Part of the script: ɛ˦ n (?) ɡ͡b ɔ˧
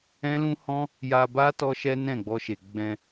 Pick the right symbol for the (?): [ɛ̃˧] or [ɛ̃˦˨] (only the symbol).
ɛ̃˦˨